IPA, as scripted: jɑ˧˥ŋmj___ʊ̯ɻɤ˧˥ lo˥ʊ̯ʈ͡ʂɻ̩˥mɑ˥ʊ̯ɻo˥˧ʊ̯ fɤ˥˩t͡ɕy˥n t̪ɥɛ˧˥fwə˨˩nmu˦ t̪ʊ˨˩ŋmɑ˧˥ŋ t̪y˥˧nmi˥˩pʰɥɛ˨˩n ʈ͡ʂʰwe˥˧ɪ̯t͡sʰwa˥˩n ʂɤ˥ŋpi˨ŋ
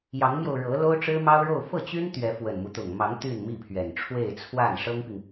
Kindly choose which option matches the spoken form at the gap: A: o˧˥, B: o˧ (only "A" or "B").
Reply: B